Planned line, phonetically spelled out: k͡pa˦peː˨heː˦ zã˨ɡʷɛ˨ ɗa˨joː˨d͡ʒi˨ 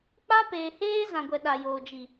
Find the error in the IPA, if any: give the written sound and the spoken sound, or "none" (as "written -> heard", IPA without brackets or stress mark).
none